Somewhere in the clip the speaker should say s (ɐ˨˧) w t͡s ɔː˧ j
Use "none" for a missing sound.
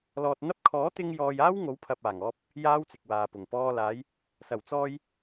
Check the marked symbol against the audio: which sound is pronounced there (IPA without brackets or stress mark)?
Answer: ɐ˨˩